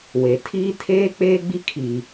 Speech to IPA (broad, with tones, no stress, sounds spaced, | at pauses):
w e˨ tʰ iː˦ tʰ eː˦ k͡p eː˦ ɡ͡b i˦ kʰ iː˨